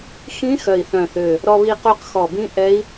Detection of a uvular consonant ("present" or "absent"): present